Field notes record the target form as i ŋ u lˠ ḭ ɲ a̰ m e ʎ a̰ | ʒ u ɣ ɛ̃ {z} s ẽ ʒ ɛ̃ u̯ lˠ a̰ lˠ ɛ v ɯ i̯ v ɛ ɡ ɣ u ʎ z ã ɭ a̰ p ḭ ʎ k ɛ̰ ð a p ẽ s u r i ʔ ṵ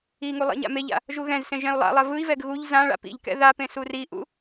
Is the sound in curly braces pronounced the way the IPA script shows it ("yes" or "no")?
yes